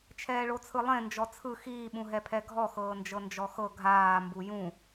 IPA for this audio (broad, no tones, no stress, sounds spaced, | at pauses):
t͡ʃʰ ɛː ɭ o t͡sʰ ɯ lˠ ẽ n d͡ʒ ɔ t͡sʰ ɯ x iː ɓ ũ ɦ ɛ pʰ ɛ ɡʱ ɔ x ɤː n d͡ʒ ɤ n d͡ʒ ɔ x ɤ ɡʱ aː m b u j ũ